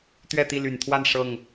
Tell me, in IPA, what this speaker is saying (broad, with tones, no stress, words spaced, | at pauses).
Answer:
t̪ɥɛ˥˨t̪i˥˨ ly˨˩nt̪ʰwa˥˨n ʂɤ˥˨ŋ